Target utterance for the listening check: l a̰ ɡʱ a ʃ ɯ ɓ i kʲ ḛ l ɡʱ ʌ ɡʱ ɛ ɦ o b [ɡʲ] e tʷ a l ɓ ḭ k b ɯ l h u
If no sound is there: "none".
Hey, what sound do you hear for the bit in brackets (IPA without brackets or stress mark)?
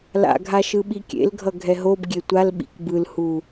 ɡʲ